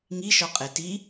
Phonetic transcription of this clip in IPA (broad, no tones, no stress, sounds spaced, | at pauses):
ŋ i ʃ ɒ qʼ e t i